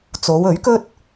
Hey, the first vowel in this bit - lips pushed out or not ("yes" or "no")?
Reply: yes